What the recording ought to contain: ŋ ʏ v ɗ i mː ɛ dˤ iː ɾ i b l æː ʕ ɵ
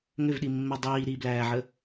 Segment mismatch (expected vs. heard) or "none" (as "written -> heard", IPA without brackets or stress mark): ɵ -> ə